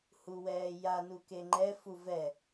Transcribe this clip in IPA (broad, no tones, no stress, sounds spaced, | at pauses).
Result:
h u w ɛː j a n u k e ŋ͡ǃ ɛ f u v ɛ